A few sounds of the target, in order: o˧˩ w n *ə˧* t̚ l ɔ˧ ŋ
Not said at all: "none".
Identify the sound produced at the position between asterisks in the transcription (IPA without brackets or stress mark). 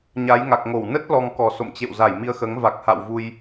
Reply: ə˦˥